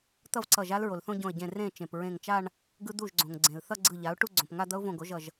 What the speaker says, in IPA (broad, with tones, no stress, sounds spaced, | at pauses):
t̪ ʌ˥˧ v ǀ ʌ˧˩ ʒ a˦˥ l ɹ o˩ l θ õ˥˧ ɟ õ˧˩ ə̯ ɟ ẽ˧˩ r ẽ˥˩ t͡ʃ ẽ˩ p ɹ ẽ˧˩ ŋ t͡ʃ a˥˧ ɳ | ɡ ɯ˦˥ d̪ u˥˩ ʒ ɡ͡ǀ õ˩ ŋ ɡ͡ǀ ẽ˩ l θ ʌ˥˧ ɡ͡ǀ ɯ˧˩ ʎ a˩˥ ʊ̯ ʈ u˥˧ ɡ͡ǀ õ˩ p ŋ a˥˧ d̪ ʌ˦˥ ʊ̯ v õ˧˩ ɡ o˩˥ ʒ ʌ˧˩ ʒ